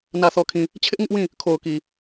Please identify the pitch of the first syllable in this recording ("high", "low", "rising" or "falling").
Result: low